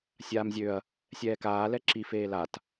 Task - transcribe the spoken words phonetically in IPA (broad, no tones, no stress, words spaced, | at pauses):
sʲaːmzʲøɐ̯ | sʲɛːkaːlɛ ǁifeː lat